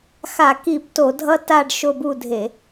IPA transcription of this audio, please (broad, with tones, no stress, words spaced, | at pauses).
xa˧˩˧ki˧˩˧bto˧˩˧dʱʌ˦ ta˦˨ɖ ʃo˦˨bu˦˨dʱe˧˩˧